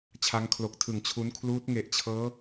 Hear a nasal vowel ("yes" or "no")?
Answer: no